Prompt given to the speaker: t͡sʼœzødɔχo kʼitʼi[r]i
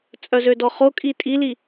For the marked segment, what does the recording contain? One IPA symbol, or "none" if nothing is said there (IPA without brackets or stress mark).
l